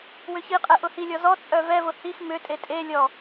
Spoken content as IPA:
w ʏ ç i qʼ ɛ ʔ ʊ h i lʲ ɔ z ɔ t͡sʼ œ v ɛ v ʊ h i x m ʏ tʼ e tʼ e lʲ ɔ

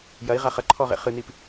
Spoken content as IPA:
j ɐ i̯ ʁ a χ ɐ ǃʰ ɔ ʁ ḛ χ ɨ n i p

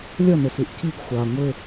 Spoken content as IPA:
lʲ ʌ n ɘ s ʉ ʔ c i ɡ xʷ a ŋʷ ɘ

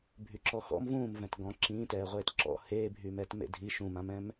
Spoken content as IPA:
bʱ y ǁ ɔ x ɔ̰ m v ũː m v ɛ̃ t ɡ ɔ̃ ǁ ĩː t ɛː ʁʷ eː t ǁ ɔ̰ h eː bʱ yː m ɛ t m ḛ dʱ i ʃ ũ m ã m ɛ̃ m

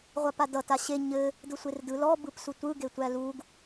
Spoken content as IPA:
ʁʷ a p a d ʌ t a ɕ e ɲ ɘ | d ɯ sʷ e r d ɯ l ɔ b ɯ p s u tʷ ɯ ɡ e tʷ æ l u ɡ

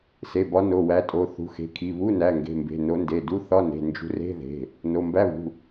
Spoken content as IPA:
s e˩˧˩ b ɒ˨˦ n o˩˧˩ w æ˨˦ tʼ o˩˧˩ θ ṳ˩˧˩ x e̤˩˧˩ kʰ i˩˧˩ β u˧˥˧ n æ˩˧˩ ŋ ɡ e̤˩˧˩ m b e̤˩˧˩ n o˨˦ n d e˩˧˩ d u˧˥˧ θ ɒ˧˥˧ n e̤˩˧˩ n d͡ʒ ṳ˨˦ r e̤˧˥˧ ð e̤˩˧˩ | n o˩˧˩ m b æ˧˥˧ β ṳ˩˧˩

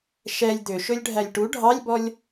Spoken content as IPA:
ʃ ɛ lʲ d̪ ø ʃ ɵ lʲ ɖʱ æ lʲ ʈ u ɖʱ ɑ lʲ b ɔ lʲ

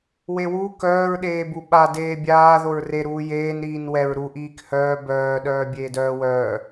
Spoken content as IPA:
w e w u k œː ɹ ɗ eː b u ɓ a d eː bʲ aː ð o ɹ r e ɾ uː j eː n ɾ iː n w ɛ ɹ ɾ u ʔ iː k h œː b œː ɗ œː bʲ eː d œː w œː

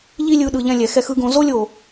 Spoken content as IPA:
ʎ i˦ lʲ ɯ˨˦ ɗ ɯ˨ ʎ ɛ̃˧ lʲ ɛ˨ x ɛ˧ x ɯ˦ ɡ õ˧ z o˦ lʲ o˨

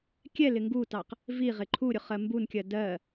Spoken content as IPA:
kʲ ɛ l ɪ ŋ ɡ u t ɑ q | v i ʁ ɪ ǃʰ u ɾʲ ʊ χ ɜ m b u n kʲ ɜ d ɜ

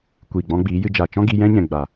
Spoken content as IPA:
kʷ iː˨ ɡ͡b ɔ̃˧ ɡ͡b iː˨˦ j ɨ˧ d͡ʒ a˨ t͡ʃ ɔ̃˦ ɡ i˧ j ɛ̃˦ ɲ ɛ̃˨ ɡ͡b a˨

